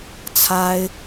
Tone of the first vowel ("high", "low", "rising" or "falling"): high